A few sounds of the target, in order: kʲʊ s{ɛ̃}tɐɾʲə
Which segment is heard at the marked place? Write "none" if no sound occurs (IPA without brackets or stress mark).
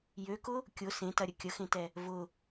ẽ